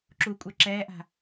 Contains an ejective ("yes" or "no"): yes